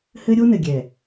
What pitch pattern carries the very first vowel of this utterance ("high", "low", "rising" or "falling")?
high